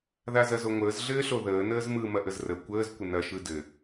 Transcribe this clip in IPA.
ð a z ɐ z o ŋʷ əː z ɮ ɘː ɬ o ð əː n əː z m ɯ m ɐ ʔ ə z r ə kʷ əː z kʷ ə n ɐ ʃ ɯ d ɘ

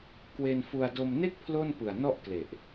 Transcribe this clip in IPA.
k w e˧ n f u˧ a̯ d o˧ m n e˥˩ k̚ pʰ l o˥˩ n p ɯ˨˩ a̯ n ɔ˥˩ ʔ k l e˨˩ ʔ

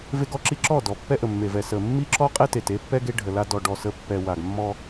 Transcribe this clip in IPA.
v e˦ ɡ ɔ˦ ǁ i˦ ǁ ɔ˦˨ d ɔ˨ pː ɛ˦ ʔ ə˨ mː e˨ v ɛ˨ s ə˨ mː i˦ ǁ ɔ˦ qʼ e˦ t e˨ t e˦ pː ɛ˦ ɡ e˦ ɖʱ ə˨ l a˦ d ɔ˨ ɖ ɔ˦˨ s ə˦ pː ɛ˨ w a˨ ɡ mː ɔ˦

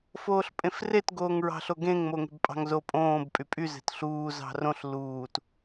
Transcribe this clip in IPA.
f oː ɬ pʼ ẽ f r e t ɡ oː ŋ ɹ ɑ̤ ɬ o ɡ ẽ ŋ m o ŋ e̤ b pʼ ɑ̤ ŋ z o pʼ õː b pʼ y pʼ y z e̤ t ɬ uː z ɑ̤ r õ ɬ l uː t

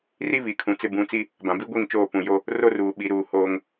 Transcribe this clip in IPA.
r i˦ β i˨ kʰ ũ˨ t͡s ɪ˦ b ũ˨˦ t͡s i˦ | b ã˨ b i˦ ɡʷ i˦˨ ŋ t͡ʃ oː˦˨ p ũ˨ j o˦ | r o˦ r uː˨ ɓ i˨ ɾ uː˨ h oː˦ ŋ

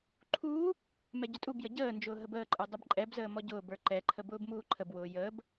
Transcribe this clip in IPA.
ǃʰ uː | m ɛ ɟ ʊ tʼ u b j ə ɟ əː n d͡ʒ ʊː ɦ ə b əː ǃʼ ə˞ dˤ ə b ǃʼ ɛ b z əː m ɔ ɟ ʊː b ə˞ ǃ ɛ ǃʰ ə b ʊː b m uː ǃʰ ə b w ʊː j əː b

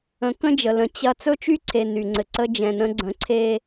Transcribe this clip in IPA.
ə̃˨˦ k ə̃˦ d͡ʒ ə˨ l ə̃˨ t͡ɕ ɐ˦ t͡s ɵ˦ t͡ʃ y˦ ǀʰ e˨ n y˨ ŋ͡ǀ ɘ˨ ǀ ə˦ d͡ʒ ɛ̃˨ n ə̃˦ ɡ͡ǀ ə̃˨˦ ǀʰ e˦

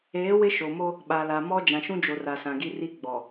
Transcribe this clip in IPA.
eː˨˦ w ɪ˦ ʃ o˨ m o˦ | ɓ a˨ l a˨ m ɔ˦ d͡ʒ ã˨ ʃ ũ˦ d͡ʒ o˨ r a˨ s ã˨ ɡ i˦ r i˦ ɡ͡b ɔ˨

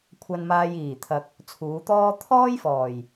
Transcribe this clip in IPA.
kʷʰ ɐ˧ n m aː˧ j iː˨˩ t̪ʰ ɐ˨ k̚ | t͡sʰ uː˨˧ t̪ ɔː˥ t̪ʰ ɔː˥ j f ɔː˨˩ j

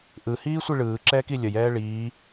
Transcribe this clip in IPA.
ʔ ɯ h iː sʷ i ɭ ɯː ǁ ɛː k i lʲ ə j ɛː ɭ iː

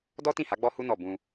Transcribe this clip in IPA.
d ɔ˦ t ĩ˦˨ h a˨˦ ɡ͡b ɔ˦ h u˦ n ɔ˦˨ b ũ˧

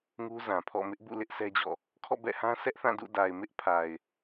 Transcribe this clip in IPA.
ŋ u˦ z ã˨ pʰ ɔ̰˦˨ m ɪ˦ ʔ b ṵ˦˨ l ɪ˦ ʔ sʰ ɛ˦ d͡ʑ ɔ̰˦˨ | kʰ ɔ̰˦˨ b ɛ̰˦˨ h ã˦ s ɛ˦ ʔ θ ã˦˨ d ṵ˦˨ d a˨ ɪ̯ m ɪ˦ ʔ pʰ a˨ ɪ̯

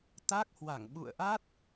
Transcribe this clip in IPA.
t̪ a˦˥ k̚ h w a˧˩ ŋ ɓ ṵ˧˨ ə̯ ʔ a˦˥ t̚

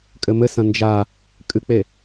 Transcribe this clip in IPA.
kʼ ɘ m ɘ s ɐ̃ n d͡ʒ a | kʼ ɨ k͡p e

